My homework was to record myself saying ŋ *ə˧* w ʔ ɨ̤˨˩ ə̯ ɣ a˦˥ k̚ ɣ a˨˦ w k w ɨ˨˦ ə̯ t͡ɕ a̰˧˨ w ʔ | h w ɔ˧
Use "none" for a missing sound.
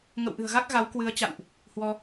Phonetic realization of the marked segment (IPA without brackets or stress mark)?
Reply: ə̰˧˨